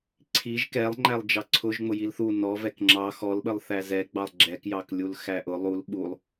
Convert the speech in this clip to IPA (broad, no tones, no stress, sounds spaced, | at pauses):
ǀʰ i ʒ k ɛ lˠ ŋ͡ǃ æ lˠ d͡ʒ ɑ ǀʰ ʊ ʒ ŋ͡m ʊ j i l θ u n ɔ v ɛ k ŋ͡ǁ ɑ x ɔ l ɓ ə lˠ θ æ z ɛ ɡ͡b ɑ lˠ ɡ͡ǁ ɛ k j ɑ k lʲ u l x æ ʔ ʊ lˠ u l ɓ u lˠ